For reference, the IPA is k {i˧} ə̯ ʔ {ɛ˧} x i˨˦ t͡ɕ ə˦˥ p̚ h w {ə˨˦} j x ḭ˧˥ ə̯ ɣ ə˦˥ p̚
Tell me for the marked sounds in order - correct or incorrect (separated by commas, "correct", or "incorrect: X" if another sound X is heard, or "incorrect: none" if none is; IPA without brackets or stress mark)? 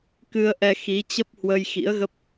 incorrect: ɨ˧, correct, incorrect: ə˧